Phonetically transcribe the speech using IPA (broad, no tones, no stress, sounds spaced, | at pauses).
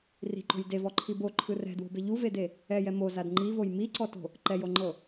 r i̤ ǃ o̤ j d e v ɔ ǃʰ i b o ǃʰ ɯ r ɛ̤ d w o̤ b e ʎ u v e d e | ɛ j ɛ m o z a d ŋ͡ǃ i v o j m i ǀ ɔ t o̤ | ǃ ɛ j o ŋ͡ǃ ɤ